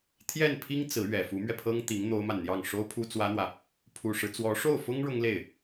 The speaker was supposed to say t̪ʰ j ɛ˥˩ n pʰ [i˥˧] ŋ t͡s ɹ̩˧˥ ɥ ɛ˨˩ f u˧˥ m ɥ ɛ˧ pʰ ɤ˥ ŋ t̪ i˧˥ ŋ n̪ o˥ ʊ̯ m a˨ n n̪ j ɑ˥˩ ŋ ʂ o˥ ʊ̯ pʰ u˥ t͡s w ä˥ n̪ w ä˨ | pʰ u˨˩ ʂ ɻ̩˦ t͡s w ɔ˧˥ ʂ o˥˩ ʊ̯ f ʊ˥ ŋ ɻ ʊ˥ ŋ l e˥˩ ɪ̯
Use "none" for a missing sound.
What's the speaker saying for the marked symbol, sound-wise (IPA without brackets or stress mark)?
i˥